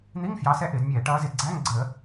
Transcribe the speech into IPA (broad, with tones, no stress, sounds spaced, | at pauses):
n̪ i˧˥˧ ŋ f j ɑ˨˦ s ɛ˧˥˧ ʔ ɪː˧˩˧ d mʲ ɛː˧˩˧ ʈ ʌː˨˦ z ɪ˧˩˧ d ɡ͡ǀ æ˧˥˧ ŋ ɡ͡ǀ əː˧˩˧